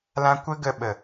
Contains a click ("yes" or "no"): no